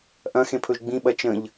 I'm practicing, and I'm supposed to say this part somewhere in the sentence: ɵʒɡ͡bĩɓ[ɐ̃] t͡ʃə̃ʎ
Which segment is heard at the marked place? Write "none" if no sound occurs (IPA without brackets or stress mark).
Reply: ɐ